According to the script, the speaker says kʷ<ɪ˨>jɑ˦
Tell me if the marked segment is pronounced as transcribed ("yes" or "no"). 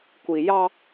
no